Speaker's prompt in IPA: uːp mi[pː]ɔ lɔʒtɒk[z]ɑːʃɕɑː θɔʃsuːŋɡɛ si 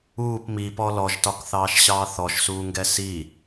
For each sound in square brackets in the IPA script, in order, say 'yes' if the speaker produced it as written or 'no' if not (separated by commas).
no, no